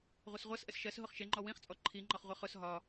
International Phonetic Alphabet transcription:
ʁʷʌsʁʷʌsʔəs ʃɜs ɦʊχʃɪŋ͡ǃɔ wĩχt͡sʼɔ ǃʰiŋ͡ǃɒχʁʷɛ χʊs ɦɒ

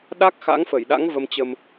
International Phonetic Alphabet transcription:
ɗa˦˥k̚xa̰˧˥ŋfə˧˩jɗa̰˧˥ŋ və˧mt͡ɕə˧m

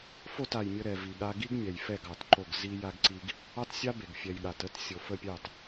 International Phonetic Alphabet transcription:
fo˦˨ta˨j mʲə˧ɾɛ˨vi˨ ɠa˧ɡi˦ɡmʲɛ˨j fɛ˦˨ɡɑ˨tǃo˦˨ɡ zi˧ ja˧ɡǀi˧ɡ | ɑ˦tsʲa˦be˨ɡ fʲɛ˨j ɠa˨tə˦t sʲo˨fə˦˨ pʲɑ˦˨t

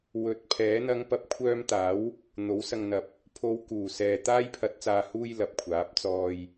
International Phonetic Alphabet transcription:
wɵ˨˥t̚pʰɛː˨˥ n̪ɐ˨˧ŋ pɐ˨p̚kʷʰœː˧mt̪aː˨˥w | n̪o˨˥w sɐ˨ŋn̪ɐ˨˥p̚ | pʰo˨˧w kuː˨˩sɛː˨t̪aː˥j pʰɐ˨t̚t͡saː˨huː˧j lɐ˨p̚kʷʰaː˨˥p̚ t͡sɔː˧j

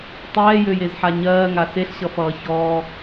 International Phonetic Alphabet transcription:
tˤɛːjøjezħa ɲɜːŋa seɬɕʌfʌː çɔː

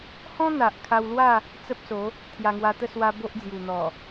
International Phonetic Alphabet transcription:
hɔ̃˦n̪a˨ʔ kʰa˧wlwa˥˧ | t͡sə˦p̚so˨˦ | t̪ʰja˧ŋwa˧t̪ə˥˧ swa˧ bo˦ʔd͡zju˨˩n̪ɔ˨˩

